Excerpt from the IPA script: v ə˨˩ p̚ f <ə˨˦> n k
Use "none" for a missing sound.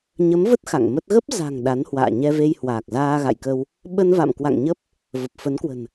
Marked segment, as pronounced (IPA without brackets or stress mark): ə˨˦